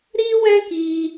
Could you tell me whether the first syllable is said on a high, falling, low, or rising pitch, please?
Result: high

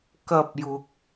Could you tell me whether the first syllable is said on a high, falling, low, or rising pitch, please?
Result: high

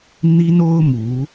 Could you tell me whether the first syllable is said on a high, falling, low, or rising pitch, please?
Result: high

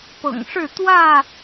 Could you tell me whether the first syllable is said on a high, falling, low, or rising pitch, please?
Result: low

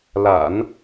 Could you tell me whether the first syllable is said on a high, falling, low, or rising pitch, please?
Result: low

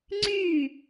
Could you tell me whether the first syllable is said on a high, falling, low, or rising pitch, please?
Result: falling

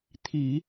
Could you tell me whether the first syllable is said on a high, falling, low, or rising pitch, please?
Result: low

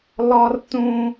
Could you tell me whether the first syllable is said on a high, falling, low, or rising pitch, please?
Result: high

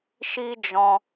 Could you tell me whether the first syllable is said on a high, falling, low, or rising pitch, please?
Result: high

